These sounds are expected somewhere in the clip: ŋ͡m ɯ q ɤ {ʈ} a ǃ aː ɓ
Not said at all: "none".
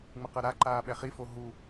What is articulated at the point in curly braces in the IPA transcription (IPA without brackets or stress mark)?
ɾ